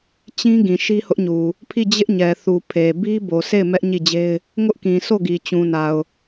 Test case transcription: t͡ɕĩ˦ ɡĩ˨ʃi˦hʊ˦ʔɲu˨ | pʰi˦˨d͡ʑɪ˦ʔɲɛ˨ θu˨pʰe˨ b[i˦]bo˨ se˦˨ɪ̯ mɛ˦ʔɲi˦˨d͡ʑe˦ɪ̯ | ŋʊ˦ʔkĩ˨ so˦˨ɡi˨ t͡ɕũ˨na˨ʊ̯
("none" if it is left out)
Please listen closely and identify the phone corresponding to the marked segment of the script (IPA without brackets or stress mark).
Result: i˦